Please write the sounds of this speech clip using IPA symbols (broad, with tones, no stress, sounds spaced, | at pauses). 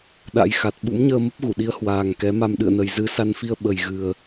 ɗ a̰˧˥ j x a˨˩ t̚ ɓ ṵ˧˥ m ɲ əː˧ m ə˦˥ p̚ ɣ u˧˩ ɗ i˨˦ ə̯ h w aː˨˩ ŋ k ɛ˨˦ m a˧ m ɗ ɨ̰˧˨ ə̯ n ə˨˩ j z ɨ˨˦ s a˧ n f i˧ ə̯ ɓ ə˨˩ j ɣ ɨ˨˩ ə̯